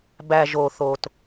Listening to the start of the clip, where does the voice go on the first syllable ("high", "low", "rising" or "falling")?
low